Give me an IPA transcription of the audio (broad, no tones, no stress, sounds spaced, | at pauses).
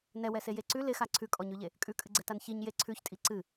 n ɛ w ɛ s e j e ǀ ʉ l ɪ x a ǀʰ ʉ kʼ ɔ ɲ ʉ ʎ e | kʼ ʉ kʼ ɨ ɡ͡ǀ ɛ t a n ç i ɲ j e ǀʰ ʉ ç tʼ i ǀ ɨ